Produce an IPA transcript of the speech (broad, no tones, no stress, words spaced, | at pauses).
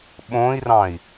ɓõi̯rɑ̃i̯